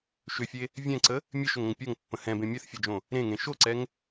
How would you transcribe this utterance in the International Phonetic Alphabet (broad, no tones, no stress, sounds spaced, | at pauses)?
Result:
ʃ ʏ fʲ e | vʲ ɛ̃ ǀ ə | mʲ e ʃ ʏ ŋ ə̃ ŋ pʲ o ŋ pː ə̃ h ɛ̃ b ẽ mʲ ɛ θ fʲ ɛ d͡ʒ õ | ɾ ẽ ŋ ẽ ʃ o ǀ ɛ ŋ